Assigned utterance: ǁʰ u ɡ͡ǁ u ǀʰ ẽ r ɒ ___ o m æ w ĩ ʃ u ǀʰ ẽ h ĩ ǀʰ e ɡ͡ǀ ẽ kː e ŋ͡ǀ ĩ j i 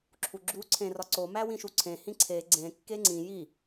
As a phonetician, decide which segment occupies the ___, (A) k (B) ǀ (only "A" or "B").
B